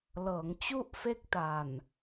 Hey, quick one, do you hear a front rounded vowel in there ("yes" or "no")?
no